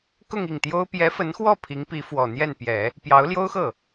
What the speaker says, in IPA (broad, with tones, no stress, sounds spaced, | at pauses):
k ʊ˥˧ ŋ i˥˩ ŋ t̪ j o˥ ʊ̯ p j ɛ˧˥ f ə˧˥ n x w ɔ˥˩ pʰ i˧˥ ŋ p i˧˥ f w ɔ˨˩ n̪ j ɛ˥˩ n p j ɛ˨˩˦ | p j ɑ˧˥ ʊ̯ l j o˥ ʊ̯ x ɤ˥˩